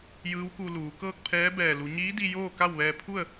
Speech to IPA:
j ɯː˧˥ w k u˧ l uː˩˧ k ɤː˥˨ k̚ pʰ ɛː˧˥ b ɛː˧˩ l u˩˧ ɲ iː˧˥ d i˧ j oː˥˨ k a˥˨ w ʋ ɛː˧ pʰ u˥˨ ə̯

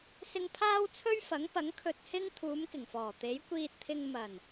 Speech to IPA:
s ɪ˧ ŋ pʰ aː˥ w t͡sʰ ɵ˥ ɥ f ɐ˨˥ ŋ p ɐ˨˥ ŋ kʰ ɵ˧ t̚ h ɪ˥ ŋ t̪ʰ uː˨˧ m k ɪ˨˩ ŋ f ɔː˨˩ t̪ e˨˥ j kʷ iː˧ t̚ t̪ʰ ɪ˧ ŋ m ɐ˨˩ n

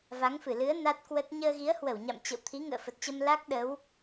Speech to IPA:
v a˨˦ ŋ f ɨ˧˩ l ɨ˨˦ ə̯ n a˦˥ t̚ k w ə˦˥ t̚ ɲ əː˧ ɣ i˨˦ ə̯ h w ə˧˩ w ɲ a̰˧˨ m t͡ɕ ə̰˧˨ w t̪ʰ i˨˦ ŋ ə̰ː˧˨ f ə˨˩ t̚ t͡ɕ ə˧ m l a˦˥ k̚ ɗ ə˨˦ w

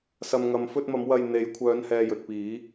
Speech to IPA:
s ɐ˨ m ŋ ɐ˨ m f ɵ˧ t̚ m ɐ˨˧ m w ɐ˧ j n̪ e˨˧ j kʷʰ œː˨˧ n h ɛː˨ j ɵ˨ t̚ p iː˨˧

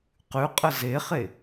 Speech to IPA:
q ʉ qʼ ə z e χ e

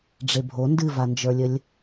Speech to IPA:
ɖ͡ʐ e bʱ o n d ɨ v a n d͡ʒ ə˞ lʲ ə lʲ

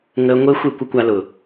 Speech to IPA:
ŋ əː˧ ŋʷ e˦ xʷ e˦˨ kʷ ə˦ kʷ a˧ l ʊ˨

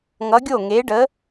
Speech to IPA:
ŋ ʌ˨˥ ɡʲ o˥˩ ŋ e˨˥ ɖ ə˨˥

